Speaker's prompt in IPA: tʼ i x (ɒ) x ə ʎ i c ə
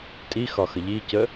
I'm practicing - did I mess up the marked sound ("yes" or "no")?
no